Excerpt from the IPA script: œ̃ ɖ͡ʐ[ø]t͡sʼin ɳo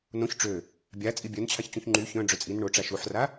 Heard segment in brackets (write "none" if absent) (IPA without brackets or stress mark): ø